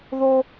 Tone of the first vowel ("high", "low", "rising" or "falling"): high